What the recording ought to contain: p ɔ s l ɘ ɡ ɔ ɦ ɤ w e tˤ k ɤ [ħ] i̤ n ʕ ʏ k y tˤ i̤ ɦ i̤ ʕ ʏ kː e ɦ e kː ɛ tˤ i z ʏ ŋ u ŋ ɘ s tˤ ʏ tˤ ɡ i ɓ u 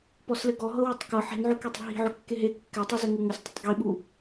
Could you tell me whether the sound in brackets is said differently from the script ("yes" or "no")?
no